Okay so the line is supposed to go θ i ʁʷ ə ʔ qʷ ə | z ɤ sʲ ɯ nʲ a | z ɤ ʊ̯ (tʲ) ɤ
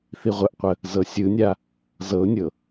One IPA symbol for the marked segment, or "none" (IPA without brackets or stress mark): nʲ